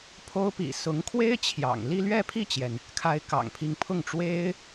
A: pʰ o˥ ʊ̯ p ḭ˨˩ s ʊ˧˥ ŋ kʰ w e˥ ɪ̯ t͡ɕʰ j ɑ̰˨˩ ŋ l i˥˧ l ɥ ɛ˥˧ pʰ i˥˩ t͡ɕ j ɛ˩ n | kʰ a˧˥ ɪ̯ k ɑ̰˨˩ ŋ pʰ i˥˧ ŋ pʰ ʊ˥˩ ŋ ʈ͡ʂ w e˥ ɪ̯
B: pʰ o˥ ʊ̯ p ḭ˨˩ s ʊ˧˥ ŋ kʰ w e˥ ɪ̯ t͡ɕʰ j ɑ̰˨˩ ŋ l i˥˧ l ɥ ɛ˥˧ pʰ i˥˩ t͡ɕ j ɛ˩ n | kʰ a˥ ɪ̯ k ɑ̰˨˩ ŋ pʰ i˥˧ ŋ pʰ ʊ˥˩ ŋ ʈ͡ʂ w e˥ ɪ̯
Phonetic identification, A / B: B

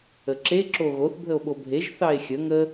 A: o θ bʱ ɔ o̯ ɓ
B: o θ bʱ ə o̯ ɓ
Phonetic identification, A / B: B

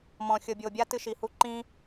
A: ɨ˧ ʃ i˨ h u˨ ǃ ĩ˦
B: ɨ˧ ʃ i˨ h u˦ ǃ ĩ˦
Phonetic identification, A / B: B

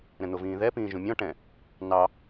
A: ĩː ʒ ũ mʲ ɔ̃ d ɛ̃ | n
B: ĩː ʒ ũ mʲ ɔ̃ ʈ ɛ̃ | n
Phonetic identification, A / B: B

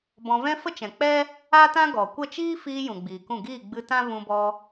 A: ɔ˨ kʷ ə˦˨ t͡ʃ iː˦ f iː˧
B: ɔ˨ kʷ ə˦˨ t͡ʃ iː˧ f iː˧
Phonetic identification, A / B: A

